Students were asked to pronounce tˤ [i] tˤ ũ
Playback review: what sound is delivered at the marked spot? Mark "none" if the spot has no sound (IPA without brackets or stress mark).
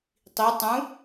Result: i